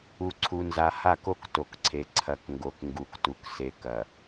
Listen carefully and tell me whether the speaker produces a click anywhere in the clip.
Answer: yes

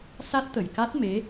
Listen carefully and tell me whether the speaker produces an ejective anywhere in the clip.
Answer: no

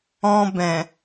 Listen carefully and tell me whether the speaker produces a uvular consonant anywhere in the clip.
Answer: no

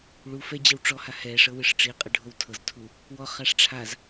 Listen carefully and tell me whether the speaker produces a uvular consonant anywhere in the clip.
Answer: yes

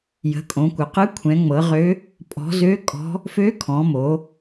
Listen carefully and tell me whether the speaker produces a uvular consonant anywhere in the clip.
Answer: yes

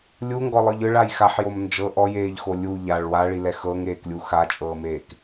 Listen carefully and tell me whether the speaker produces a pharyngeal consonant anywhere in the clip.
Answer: yes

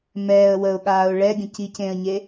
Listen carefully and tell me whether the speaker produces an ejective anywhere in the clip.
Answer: no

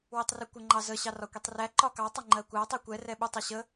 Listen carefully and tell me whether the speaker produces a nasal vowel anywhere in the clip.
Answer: no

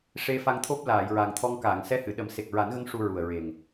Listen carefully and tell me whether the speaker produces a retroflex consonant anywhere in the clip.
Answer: yes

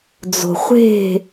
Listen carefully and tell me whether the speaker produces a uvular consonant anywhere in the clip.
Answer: yes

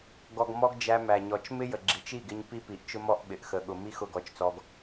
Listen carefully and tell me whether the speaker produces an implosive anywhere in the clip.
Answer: yes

